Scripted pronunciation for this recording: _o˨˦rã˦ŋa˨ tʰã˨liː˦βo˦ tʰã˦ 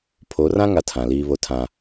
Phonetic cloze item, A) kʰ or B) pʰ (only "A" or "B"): B